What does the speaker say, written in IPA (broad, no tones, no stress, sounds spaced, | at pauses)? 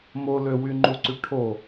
m o l ø w y ŋ͡ǃ u ǀ y ʈʰ o